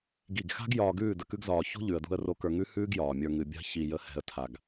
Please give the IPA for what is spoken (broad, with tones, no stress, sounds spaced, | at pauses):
ɡ i˦˨ ɡ x a̤˦ ɡ j ɒː˧ ɡ ʉː˦˨ d ə˧ k ʉ˦ ɡ z ɒː˧ ç o̤˦ ʎ ʉ˨ ə̯ d ṳ˧ ə̯ r o˧ k ə˞˧ ŋ ʉ˦ h ʉː˦ ɡ j ɒː˨ mʲ ə˞˧ ŋ ɨ˨ bʲ a̤˦ ç i˧ j ə˧ h ɛ̤˧ ə̯ tʰ a˧ ɡ